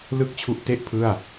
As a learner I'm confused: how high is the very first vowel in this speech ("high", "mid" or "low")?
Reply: high